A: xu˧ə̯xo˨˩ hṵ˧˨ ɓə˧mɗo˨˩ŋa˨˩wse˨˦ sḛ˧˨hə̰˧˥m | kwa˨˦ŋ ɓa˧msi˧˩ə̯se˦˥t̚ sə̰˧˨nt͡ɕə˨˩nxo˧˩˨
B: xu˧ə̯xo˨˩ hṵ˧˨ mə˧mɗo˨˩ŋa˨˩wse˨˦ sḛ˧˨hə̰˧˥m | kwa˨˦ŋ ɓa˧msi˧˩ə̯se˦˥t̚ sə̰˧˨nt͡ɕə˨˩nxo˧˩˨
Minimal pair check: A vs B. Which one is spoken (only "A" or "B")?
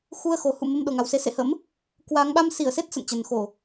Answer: B